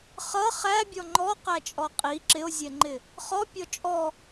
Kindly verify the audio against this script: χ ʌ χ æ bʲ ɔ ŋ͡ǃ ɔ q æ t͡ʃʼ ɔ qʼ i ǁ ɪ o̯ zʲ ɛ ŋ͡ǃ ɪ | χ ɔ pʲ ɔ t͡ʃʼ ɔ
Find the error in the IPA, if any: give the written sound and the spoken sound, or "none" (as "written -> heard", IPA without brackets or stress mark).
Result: none